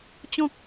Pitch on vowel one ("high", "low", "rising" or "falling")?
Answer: low